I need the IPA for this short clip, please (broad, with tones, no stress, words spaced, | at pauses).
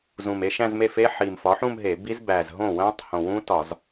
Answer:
zũ˨˩me˥˧ ʃæ̃˥˧zme˥˩fe˦˥ ħi˨˩m fɒ˩˥ħũ˥˧m ɦe˧˩˧bi˦˥z bæ˨˩zɦõ˥˩wæ̃˦˥tˤ hõ˨˩wũ˦˥tɒ˧˩˧z